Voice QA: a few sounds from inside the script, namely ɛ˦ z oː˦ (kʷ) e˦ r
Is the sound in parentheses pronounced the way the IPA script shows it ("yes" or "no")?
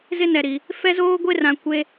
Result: no